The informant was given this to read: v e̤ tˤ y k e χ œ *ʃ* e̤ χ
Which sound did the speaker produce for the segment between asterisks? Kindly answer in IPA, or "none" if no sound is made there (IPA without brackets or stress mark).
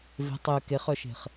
ʃ